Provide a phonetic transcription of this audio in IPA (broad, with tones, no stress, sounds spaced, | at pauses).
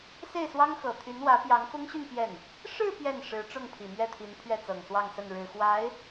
s e˥˩ ɪ̯ s w ɑ˥ ŋ x ɤ˨˩ t̪ʰ y˧˥ n w ä˧˥ p j ɑ˧˥ ŋ f ʊ˥ ŋ ɕ y˥˧ n p j ɛ˥˩ n | ʂ ɻ̩˥˧ p j ɛ˥˩ n ʂ ɻ̩˧˥ ʈ͡ʂ ʊ˥˩ ŋ pʰ i˨˩ m ɥ ɛ˥˩ t̪ʰ i˧˥ n pʰ ɥ ɛ˥˩ t͡s ɤ˨˩ ŋ s w ɑ˥˧ ŋ s ə˥˩ n ɻ ɻ̩˨˩ x w a˧˥ ɪ̯